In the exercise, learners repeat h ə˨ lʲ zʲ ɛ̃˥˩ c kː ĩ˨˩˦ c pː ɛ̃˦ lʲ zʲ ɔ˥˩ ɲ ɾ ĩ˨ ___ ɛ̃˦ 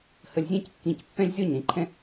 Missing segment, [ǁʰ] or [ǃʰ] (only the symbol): ǃʰ